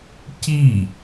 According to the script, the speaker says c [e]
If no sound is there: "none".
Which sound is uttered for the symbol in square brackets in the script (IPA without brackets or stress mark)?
i